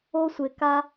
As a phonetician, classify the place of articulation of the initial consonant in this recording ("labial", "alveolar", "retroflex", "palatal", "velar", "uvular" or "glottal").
alveolar